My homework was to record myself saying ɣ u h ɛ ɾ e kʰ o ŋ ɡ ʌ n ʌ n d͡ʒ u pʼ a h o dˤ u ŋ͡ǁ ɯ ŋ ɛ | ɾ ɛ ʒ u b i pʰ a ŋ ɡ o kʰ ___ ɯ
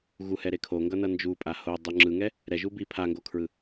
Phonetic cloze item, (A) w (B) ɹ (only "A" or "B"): B